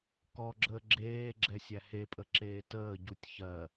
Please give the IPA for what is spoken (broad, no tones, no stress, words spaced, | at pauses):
kɔɡ͡ǁəː ɡ͡ǁeː ɡ͡ǁɛsʲæhepʼə ǁeːtəːɟutʲ çɜ